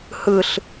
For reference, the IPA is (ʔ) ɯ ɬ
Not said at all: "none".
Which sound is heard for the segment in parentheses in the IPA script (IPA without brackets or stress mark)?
h